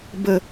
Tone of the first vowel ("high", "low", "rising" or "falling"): low